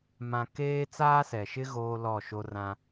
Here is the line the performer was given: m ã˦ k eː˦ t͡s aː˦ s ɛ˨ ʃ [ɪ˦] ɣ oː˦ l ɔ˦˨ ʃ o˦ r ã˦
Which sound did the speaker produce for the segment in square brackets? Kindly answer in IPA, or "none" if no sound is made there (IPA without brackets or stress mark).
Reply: ɪ˦